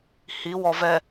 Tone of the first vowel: rising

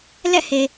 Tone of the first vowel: falling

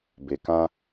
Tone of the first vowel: low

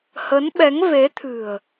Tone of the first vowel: rising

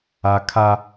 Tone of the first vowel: high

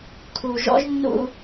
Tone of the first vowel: low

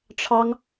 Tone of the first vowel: high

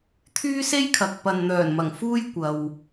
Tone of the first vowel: high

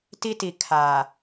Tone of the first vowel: high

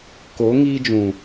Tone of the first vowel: rising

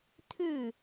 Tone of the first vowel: falling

